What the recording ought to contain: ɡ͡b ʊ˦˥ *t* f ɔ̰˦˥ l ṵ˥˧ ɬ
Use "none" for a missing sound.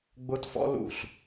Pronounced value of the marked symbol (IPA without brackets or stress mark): t